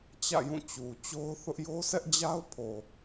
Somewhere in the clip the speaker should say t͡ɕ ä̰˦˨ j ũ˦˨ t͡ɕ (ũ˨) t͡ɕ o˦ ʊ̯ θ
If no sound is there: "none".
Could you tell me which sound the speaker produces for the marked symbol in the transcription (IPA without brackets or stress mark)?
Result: u˨